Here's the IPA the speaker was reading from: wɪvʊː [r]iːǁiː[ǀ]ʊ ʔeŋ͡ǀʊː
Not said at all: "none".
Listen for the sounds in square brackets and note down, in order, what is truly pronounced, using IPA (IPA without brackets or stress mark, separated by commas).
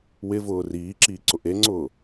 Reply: r, ǀ